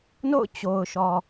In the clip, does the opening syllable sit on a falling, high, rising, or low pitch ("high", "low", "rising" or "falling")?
falling